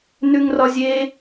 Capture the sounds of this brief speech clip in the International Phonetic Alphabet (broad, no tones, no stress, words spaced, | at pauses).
nʉŋrɒzʲe